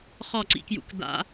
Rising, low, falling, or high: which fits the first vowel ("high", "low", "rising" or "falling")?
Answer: falling